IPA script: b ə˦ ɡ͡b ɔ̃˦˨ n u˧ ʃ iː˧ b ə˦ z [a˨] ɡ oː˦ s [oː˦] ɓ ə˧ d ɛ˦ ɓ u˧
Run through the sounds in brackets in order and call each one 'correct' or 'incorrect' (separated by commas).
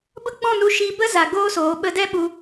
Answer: correct, incorrect